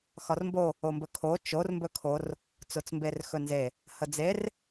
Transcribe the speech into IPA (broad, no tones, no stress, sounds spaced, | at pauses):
x ɒ r m b o | o m b ɵ kʰ o t͡ʃ o r m b ɵ kʰ o r | t͡s o t͡s m b e r x ɵ n z e | h ə d͡z e r